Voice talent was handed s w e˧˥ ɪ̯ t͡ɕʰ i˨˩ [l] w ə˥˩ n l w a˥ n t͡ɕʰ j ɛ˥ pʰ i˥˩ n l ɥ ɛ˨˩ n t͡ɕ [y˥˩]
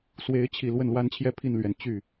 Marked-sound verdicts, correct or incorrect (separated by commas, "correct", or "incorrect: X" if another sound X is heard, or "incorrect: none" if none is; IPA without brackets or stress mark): correct, correct